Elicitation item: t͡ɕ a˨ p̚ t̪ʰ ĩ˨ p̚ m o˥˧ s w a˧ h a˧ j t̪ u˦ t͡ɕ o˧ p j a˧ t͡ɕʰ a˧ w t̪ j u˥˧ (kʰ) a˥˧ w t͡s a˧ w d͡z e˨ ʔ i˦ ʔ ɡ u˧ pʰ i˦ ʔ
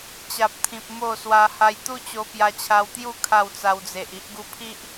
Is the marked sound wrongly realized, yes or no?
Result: no